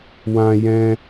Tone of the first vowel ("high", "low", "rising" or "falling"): high